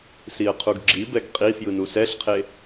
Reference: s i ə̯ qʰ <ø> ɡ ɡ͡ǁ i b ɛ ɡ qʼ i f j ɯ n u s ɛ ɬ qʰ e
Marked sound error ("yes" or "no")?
yes